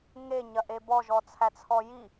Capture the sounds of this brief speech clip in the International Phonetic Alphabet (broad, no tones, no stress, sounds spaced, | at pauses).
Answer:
ŋ e ɲ ɐ ʔ e b ɔ ʒ ɔ t͡sʰ æ t͡sʰ ɔ j i